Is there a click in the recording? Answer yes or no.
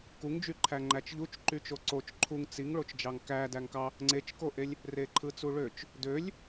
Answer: yes